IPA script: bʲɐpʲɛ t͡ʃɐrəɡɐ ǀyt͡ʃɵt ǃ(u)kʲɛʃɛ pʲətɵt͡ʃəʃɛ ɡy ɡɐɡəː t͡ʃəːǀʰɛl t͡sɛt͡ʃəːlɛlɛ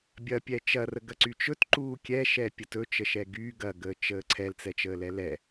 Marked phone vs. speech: incorrect: uː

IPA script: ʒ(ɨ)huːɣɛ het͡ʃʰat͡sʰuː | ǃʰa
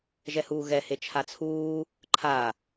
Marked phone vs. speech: incorrect: ɛ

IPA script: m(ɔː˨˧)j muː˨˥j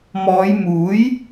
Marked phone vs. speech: correct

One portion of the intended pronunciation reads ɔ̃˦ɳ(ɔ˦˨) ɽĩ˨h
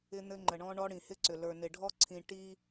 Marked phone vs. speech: incorrect: ɔ˦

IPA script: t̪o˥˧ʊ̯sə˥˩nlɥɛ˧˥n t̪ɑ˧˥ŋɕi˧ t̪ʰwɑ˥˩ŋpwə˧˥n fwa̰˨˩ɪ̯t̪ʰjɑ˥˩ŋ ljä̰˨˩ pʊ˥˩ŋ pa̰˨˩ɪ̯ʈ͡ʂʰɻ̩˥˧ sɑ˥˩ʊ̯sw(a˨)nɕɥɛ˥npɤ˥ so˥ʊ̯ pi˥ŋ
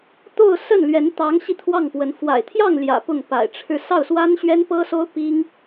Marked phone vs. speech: incorrect: a˥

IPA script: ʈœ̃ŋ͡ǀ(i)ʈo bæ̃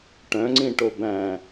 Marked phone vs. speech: incorrect: ĩ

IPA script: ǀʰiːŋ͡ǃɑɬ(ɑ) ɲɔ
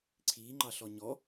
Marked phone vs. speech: incorrect: ɔ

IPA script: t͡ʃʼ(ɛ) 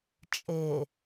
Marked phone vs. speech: incorrect: e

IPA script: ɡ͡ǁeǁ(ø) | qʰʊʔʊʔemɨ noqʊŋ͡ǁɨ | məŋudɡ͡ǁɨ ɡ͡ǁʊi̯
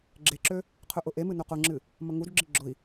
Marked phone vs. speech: correct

